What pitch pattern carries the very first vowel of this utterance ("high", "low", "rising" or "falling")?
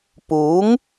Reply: rising